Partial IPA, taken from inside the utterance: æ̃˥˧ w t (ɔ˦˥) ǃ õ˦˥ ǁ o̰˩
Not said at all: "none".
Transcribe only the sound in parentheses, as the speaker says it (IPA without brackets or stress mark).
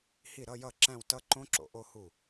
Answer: ʌ˦˥